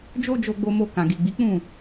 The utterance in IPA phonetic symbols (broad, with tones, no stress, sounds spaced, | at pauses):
d͡ʒ o˦ d͡ʒ o˧ ɡ͡b o˧ m o˧ k ã˨ ɡ i˨ ɡ͡b i˨˦ k͡p ũ˦˨